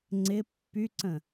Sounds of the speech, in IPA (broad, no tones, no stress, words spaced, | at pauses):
ŋ͡ǀɪ pːyǀə̃